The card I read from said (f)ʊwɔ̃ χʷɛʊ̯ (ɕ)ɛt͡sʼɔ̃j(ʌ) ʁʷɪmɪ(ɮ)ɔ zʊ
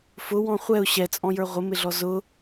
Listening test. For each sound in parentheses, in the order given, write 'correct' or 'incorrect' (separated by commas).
correct, correct, incorrect, correct